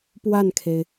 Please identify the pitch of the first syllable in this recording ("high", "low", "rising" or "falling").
falling